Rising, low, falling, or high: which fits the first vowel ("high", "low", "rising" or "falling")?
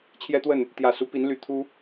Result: high